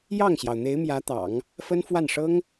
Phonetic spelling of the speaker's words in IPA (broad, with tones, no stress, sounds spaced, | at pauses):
j ɑ˥˩ ŋ ɕ j ɑ˩ ʊ̯ n̪ e˧˥ ɪ̯ m j ä˧˥ t̪ ɑ̰˨˩˦ ŋ | f ə˥ n f w a˥˩ n ʂ ɤ˥ ŋ